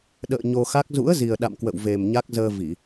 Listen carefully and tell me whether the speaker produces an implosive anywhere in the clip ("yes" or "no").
yes